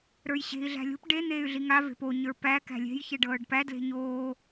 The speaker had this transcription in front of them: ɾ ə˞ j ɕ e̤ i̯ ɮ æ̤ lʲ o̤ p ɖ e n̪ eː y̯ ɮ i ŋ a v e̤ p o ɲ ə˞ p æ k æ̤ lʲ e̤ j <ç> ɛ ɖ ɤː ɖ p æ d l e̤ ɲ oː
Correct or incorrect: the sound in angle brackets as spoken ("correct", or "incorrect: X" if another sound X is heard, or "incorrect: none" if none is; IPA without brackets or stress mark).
correct